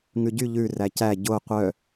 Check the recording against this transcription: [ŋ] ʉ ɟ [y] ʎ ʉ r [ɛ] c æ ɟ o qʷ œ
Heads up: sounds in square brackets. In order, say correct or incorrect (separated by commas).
correct, correct, incorrect